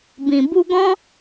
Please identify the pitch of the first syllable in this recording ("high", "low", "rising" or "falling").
low